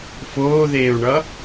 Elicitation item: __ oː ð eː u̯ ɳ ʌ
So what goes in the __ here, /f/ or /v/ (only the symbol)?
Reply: f